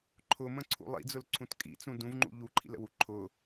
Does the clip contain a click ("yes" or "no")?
yes